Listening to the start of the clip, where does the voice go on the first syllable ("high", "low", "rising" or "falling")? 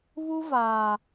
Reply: high